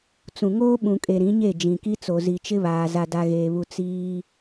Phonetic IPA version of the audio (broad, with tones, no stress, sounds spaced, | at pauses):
t͡s ũ˨ ŋ oː˦ ɓ ũ˨ kʼ e˨ ɾ ĩ˨˦ ɲ e˦˨ d͡ʒ ĩ˨ k i˦ t͡s o˨ z i˨ t͡ʃ ɪ˦ β aː˨ z a˨ d a˨ ɣ eː˨ β u˨ t͡s iː˦